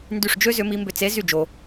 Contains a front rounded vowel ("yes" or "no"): yes